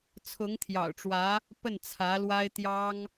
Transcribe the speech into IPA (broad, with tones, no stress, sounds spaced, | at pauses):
t͡sʰ ʊ˧˥ ŋ t̪ʰ j ɑ̰˨˩ ʊ̯ ʈ͡ʂ w ä˧˥ | p ə˥˩ n t͡sʰ ä˧˥ l w a˥ ɪ̯ t̪ j ɑ˥ ŋ